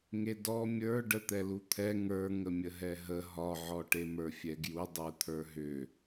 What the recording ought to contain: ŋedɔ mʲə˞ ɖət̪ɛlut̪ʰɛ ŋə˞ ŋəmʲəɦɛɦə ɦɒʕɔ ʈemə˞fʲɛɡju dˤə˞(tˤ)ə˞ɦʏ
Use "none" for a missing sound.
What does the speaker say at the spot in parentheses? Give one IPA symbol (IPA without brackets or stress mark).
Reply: t̪ʰ